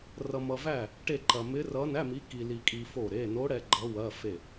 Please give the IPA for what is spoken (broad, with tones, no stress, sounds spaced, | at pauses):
r ʌ˧ m ʌ˧ v æ˥˨ | ʈ e˥˨ ǃ ɐ˧ m ɪ˧˥ r ʌ˧˥ n æ˧˥˧ m i˧˥ k i˧ l i˧ kʼ i˧ f o˥˨ ɾ e˧˥˧ n o˧˥ ɽ ɛ˧ ɡ͡ǃ ʌ˧˥ w ɐ˧˥˧ f e˥˨